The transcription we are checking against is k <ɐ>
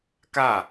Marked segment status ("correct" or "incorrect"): incorrect